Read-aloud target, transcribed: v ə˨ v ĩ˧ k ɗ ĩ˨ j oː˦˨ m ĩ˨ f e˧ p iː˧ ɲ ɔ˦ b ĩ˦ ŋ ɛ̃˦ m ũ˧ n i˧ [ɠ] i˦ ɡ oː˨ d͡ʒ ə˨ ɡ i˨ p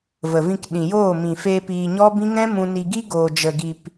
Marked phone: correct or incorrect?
incorrect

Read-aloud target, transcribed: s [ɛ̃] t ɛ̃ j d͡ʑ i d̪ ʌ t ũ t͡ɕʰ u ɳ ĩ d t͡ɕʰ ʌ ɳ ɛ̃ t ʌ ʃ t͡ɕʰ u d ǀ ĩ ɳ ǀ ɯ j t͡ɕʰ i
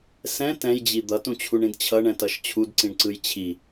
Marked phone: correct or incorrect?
correct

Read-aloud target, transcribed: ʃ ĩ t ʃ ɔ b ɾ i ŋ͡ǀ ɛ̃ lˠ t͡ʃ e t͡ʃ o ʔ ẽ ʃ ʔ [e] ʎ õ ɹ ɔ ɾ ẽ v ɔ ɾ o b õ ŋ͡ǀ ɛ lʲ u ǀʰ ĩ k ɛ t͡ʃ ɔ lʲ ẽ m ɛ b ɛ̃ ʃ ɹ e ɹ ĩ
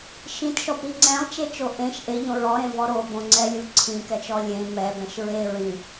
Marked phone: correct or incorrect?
correct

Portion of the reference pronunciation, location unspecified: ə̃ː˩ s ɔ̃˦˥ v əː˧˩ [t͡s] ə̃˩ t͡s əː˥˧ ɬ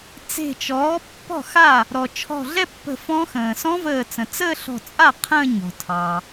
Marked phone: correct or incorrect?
correct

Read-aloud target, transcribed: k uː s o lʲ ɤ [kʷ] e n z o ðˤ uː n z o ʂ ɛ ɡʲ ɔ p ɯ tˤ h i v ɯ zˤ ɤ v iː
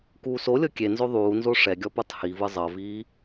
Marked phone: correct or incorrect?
incorrect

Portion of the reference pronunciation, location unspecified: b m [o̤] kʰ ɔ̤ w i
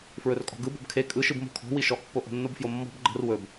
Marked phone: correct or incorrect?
correct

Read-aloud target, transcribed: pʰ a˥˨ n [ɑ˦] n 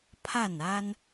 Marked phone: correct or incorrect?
incorrect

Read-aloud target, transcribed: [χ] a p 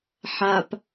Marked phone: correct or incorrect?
incorrect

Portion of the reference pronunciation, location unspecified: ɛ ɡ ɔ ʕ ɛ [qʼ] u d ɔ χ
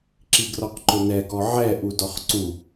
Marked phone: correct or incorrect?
incorrect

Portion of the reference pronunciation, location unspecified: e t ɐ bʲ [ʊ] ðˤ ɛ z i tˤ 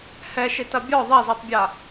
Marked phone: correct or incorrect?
incorrect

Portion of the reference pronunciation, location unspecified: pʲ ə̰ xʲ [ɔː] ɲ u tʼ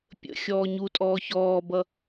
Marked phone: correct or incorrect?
correct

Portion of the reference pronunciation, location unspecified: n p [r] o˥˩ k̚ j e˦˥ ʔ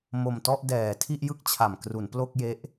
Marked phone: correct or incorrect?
incorrect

